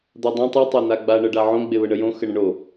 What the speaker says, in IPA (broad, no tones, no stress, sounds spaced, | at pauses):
d̪ a dˤ õ tˤ ɨ tˤ a n̪ a ɡ͡b a ɳ ɤ ɖ a ʕ õ ɡ͡b e β ə ɳ ə j õ x ə ɳ ə̃ ɳ o